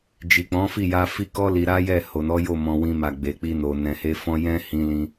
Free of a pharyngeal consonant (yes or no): yes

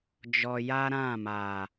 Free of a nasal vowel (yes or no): no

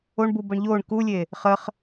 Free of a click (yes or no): yes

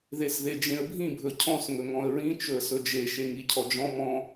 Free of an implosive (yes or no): yes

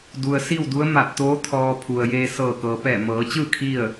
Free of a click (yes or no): yes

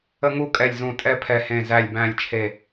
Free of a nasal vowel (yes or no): no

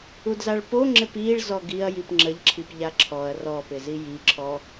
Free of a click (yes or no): no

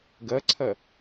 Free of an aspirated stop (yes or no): no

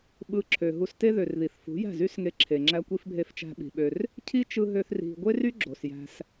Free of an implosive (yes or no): no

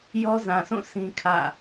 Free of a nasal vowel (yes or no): no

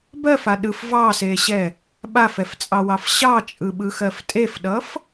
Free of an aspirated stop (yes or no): yes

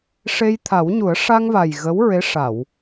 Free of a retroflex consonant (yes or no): no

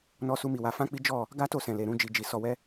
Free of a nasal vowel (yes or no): no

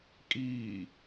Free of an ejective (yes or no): no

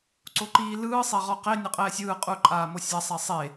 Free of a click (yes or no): no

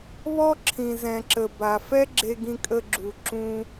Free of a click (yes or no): no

